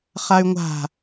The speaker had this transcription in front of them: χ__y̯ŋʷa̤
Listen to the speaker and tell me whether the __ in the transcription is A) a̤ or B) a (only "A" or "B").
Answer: B